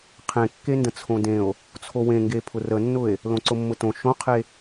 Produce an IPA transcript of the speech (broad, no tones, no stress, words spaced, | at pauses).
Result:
qʰẽkːendə̃ t͡sʰõdẽo̯ | t͡sʰowẽŋɡe pʰʊrənːʊe̯ | lõǀʊmːʊtõ ʃõqʰe